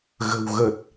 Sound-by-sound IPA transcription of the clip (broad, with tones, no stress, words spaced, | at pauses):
ɣə̤˨˩wɣə˨˩t̚